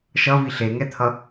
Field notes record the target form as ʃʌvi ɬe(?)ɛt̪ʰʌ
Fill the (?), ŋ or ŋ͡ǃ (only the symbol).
ŋ